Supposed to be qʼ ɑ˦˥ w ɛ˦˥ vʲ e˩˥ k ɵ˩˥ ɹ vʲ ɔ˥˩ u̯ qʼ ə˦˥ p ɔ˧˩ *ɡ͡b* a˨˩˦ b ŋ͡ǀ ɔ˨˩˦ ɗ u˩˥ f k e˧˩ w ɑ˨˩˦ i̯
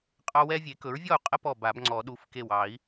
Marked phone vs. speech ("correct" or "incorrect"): incorrect